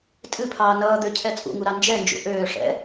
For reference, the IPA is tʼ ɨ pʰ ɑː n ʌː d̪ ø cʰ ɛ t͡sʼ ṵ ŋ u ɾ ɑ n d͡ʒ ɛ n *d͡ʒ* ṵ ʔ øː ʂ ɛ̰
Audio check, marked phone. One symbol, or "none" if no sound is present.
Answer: d͡ʒ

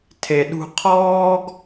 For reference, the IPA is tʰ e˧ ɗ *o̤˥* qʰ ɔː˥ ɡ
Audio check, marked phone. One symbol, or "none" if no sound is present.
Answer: ṳ˥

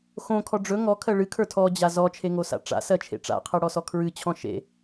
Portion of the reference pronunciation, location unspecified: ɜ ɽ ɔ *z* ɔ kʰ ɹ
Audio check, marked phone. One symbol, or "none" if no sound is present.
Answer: s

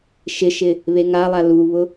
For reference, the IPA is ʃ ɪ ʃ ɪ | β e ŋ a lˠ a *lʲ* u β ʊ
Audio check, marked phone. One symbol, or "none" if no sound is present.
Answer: l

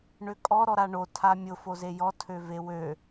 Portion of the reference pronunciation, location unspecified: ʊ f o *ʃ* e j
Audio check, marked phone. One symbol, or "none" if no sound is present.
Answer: z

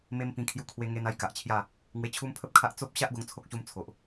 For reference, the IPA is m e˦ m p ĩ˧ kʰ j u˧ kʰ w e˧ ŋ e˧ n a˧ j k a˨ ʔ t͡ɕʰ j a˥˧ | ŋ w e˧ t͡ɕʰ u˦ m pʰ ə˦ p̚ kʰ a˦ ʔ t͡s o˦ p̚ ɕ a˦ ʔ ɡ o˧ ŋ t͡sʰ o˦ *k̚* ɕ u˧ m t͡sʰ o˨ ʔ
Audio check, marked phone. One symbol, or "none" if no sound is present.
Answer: k̚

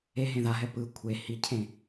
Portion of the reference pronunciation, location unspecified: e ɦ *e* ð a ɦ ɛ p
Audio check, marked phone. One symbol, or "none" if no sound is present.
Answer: ẽ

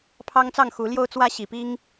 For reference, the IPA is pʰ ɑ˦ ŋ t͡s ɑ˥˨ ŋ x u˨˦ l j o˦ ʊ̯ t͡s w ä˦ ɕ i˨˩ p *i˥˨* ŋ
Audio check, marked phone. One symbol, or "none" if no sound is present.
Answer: i˦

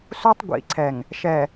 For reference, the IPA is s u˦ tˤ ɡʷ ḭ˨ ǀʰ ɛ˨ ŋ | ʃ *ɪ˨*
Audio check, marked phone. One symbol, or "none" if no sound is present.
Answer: ɛ˨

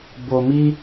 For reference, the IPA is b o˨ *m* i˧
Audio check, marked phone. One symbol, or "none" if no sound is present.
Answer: m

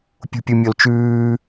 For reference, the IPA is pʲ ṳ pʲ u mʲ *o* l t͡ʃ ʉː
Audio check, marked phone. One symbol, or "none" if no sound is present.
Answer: o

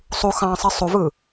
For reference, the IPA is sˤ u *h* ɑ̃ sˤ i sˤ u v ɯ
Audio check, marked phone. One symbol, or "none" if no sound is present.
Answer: x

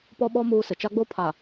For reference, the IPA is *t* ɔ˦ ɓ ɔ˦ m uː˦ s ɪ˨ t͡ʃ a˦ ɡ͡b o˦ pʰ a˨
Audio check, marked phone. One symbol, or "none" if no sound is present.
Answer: p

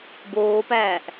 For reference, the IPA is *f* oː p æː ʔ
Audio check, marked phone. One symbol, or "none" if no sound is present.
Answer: b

